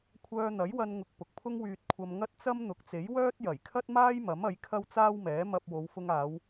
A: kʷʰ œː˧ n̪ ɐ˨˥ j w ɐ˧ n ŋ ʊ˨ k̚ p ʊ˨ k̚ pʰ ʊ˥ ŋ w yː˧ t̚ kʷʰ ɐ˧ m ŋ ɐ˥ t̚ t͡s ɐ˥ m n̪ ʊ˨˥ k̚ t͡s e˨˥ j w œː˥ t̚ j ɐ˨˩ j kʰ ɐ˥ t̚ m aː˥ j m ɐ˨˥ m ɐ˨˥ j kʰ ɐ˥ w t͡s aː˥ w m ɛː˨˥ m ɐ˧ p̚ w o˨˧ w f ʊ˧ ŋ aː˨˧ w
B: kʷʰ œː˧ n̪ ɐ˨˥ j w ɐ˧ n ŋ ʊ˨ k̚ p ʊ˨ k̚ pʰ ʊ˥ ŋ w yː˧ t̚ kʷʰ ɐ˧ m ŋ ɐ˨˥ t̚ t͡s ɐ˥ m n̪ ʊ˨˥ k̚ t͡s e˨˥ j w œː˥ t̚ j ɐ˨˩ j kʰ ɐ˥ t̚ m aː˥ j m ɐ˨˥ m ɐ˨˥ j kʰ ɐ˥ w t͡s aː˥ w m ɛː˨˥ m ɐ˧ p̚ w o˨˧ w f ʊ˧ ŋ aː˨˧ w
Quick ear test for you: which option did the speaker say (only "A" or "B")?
A